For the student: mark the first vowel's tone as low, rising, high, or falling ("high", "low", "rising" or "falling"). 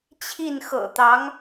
falling